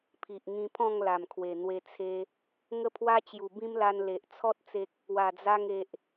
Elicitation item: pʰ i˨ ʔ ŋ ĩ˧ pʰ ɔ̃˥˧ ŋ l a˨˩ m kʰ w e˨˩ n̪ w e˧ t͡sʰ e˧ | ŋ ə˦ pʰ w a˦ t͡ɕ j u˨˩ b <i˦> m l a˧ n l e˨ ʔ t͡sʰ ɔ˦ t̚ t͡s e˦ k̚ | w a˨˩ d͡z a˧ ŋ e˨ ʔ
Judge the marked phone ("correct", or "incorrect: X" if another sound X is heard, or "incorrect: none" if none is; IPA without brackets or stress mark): incorrect: ĩ˦